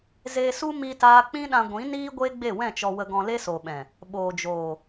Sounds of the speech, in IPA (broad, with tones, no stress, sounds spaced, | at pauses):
z eː˧ s u˦ m i˦ t aː˦ k͡p ĩ˦ ɗ ã˧ ɡʷ ĩ˨˦ n iː˦ ɡʷ eː˦ ɡ͡b e˦˨ w ɛ̃˦˨ t͡ʃ ɔ˧ w ə˧ ɡ ɔ̃˧ l e˦ s o˨ ɓ ɛ̃˨ | ɓ oː˨ d͡ʒ oː˨